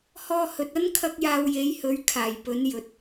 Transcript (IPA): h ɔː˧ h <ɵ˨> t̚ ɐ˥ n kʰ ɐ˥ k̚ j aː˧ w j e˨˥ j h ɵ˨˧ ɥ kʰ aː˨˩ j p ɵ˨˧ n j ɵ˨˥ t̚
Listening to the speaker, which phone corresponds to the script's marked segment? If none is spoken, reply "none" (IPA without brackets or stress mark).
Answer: ɵ˨